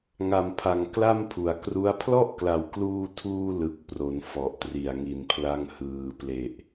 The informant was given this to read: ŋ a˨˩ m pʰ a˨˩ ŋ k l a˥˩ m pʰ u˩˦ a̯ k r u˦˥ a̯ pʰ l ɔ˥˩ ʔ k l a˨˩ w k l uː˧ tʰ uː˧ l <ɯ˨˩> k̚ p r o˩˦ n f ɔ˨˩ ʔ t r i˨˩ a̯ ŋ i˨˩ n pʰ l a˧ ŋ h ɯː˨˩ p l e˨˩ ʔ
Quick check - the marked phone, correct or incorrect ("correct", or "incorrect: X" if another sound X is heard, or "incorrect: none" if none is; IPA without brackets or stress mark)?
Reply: correct